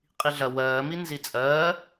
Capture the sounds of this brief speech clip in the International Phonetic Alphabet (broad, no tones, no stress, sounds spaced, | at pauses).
qʼ i ɮ ɐ w ɜː m i n z i t͡sʼ ɜː